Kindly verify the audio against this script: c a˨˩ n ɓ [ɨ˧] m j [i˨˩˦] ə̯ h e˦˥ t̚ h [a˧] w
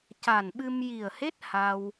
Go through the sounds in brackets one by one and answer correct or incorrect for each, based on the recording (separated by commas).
correct, incorrect, correct